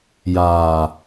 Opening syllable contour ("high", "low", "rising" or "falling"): low